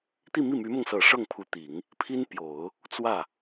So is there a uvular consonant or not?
no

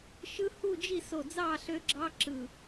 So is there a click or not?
yes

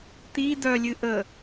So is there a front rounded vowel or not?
yes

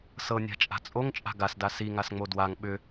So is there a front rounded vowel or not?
yes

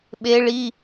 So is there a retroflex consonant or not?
yes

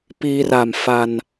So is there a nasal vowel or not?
no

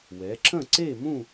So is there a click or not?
yes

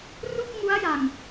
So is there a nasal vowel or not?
no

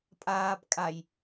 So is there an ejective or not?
yes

